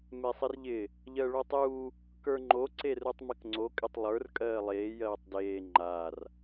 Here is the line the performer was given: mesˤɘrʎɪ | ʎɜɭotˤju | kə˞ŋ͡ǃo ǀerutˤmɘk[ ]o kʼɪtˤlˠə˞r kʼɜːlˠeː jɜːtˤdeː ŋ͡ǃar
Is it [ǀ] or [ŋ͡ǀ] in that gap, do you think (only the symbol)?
ŋ͡ǀ